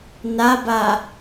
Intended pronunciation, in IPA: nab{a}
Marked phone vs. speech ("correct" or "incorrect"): correct